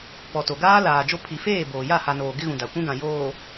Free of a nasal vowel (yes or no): no